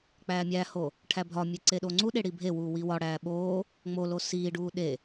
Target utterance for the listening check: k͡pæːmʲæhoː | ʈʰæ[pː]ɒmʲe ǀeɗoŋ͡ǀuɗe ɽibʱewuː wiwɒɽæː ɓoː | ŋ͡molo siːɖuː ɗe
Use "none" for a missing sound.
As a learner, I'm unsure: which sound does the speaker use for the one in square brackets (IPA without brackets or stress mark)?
bʱ